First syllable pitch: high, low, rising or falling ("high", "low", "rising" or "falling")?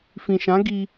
low